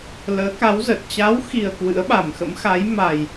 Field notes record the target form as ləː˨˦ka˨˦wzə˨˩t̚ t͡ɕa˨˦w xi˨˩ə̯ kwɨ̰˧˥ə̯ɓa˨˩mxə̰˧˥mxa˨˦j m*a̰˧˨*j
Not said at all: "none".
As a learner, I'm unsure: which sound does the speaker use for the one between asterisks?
a˨˩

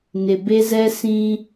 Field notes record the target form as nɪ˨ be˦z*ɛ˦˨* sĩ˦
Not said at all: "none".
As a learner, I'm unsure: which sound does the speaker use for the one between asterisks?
ɛ˦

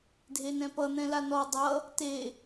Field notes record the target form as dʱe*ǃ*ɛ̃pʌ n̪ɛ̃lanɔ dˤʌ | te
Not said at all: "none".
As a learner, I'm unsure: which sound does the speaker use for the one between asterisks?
n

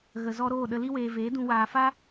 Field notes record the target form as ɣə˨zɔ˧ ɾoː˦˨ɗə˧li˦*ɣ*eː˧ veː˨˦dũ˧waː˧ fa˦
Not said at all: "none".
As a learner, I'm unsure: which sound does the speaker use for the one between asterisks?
w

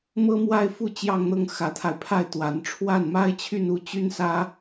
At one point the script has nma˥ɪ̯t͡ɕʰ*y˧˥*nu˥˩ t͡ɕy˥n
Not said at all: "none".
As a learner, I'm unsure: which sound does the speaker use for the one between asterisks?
y˥˧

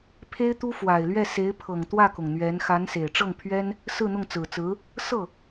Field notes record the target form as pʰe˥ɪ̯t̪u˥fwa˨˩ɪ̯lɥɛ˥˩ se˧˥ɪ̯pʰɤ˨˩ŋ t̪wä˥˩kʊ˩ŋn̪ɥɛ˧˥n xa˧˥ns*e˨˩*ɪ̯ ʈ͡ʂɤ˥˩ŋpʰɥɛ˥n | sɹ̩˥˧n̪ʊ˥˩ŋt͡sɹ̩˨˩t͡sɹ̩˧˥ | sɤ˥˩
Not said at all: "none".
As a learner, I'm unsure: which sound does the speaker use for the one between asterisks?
e˨˩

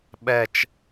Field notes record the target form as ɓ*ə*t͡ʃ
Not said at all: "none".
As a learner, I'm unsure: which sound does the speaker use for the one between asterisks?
ɛ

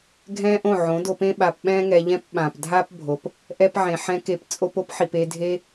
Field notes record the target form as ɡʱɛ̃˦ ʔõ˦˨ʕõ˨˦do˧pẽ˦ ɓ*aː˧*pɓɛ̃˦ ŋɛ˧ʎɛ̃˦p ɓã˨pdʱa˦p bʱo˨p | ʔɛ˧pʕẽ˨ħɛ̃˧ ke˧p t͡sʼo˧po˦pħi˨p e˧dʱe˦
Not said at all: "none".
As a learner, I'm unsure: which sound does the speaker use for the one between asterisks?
a˧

